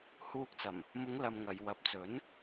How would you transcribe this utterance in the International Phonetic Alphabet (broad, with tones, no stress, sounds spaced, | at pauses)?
h uː˧ k̚ t͡s ɐ˨˩ m | m ʊ˨˧ ŋ l ɐ˧ m ŋ ɐ˨˧ j w ɐ˨ p̚ t͡s ɵ˨˥ n